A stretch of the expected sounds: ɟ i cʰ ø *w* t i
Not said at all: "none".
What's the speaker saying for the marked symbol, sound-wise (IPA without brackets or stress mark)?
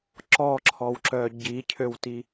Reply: w